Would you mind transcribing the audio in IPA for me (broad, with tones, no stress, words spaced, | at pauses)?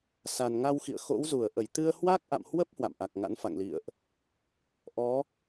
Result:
sa˨˩nŋa˧wxḭ˧˨ə̯xo̰˧˥w zu˧˩ə̯ʔə˧˩jt̪ɨ˧ə̯ hwa˦˥k̚ʔa̰˧˨mhwə˦˥p̚ hwa̰˧˨mʔa˨˩k̚ŋa̰˧˥nfa̰˧˨ŋ lḭ˧˨ə̯ʔ | ʔɔ˨˦